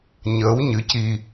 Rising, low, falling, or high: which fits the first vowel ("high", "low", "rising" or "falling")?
rising